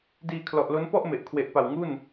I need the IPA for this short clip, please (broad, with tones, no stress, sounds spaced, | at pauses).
d iː˧ kʰ l ɔ˨˩ ʔ l o˦˥ n p ɔ˥˩ ʔ m e˨˩ ʔ kʰ w e˨˩ ʔ p a˨˩ w ŋ u˥˩ n